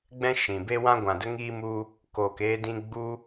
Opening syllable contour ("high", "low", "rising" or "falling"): high